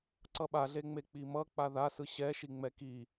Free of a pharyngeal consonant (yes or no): yes